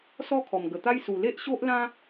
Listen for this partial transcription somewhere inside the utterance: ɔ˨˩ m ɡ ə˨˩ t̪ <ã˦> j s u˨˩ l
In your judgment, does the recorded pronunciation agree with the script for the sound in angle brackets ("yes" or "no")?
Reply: no